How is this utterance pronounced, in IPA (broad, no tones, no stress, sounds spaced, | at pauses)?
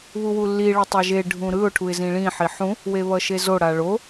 β u w u lː i ɭ ʌ tˤ a ʒ e ɖʱ ũ ɾ ɯ ʊ̯ ʈʰ u ɪ̯ z ĩ ɭ ĩ ħ i ħ ũ | w e β ʌ ʃ e z o ɽ a ɭ o